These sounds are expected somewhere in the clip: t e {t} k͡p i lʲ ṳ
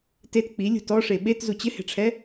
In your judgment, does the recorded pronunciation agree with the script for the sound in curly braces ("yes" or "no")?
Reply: yes